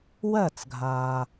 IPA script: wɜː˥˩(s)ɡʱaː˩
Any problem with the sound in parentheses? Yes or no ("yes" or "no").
yes